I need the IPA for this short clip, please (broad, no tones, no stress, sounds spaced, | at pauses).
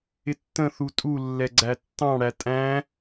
ɪ tː ə̃ θ u tʼ u lː ɛ ɡ͡ǀ æ tː ɑ̃ ɽ æ tʼ æ̃